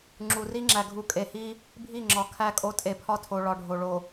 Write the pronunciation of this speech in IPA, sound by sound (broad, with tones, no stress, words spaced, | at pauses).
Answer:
ŋ͡ǁu˨ri˦ ŋ͡ǁæ˨ ɡʱu˨ kʼe˨hi˦ | bʱi˦˨ŋ͡ǁɒ˨ kʰæ˦˨kʼo˦tʼe˨ pʰɒ˦tʰo˨ɭɒ˨ɖʱo˨ ɭo˨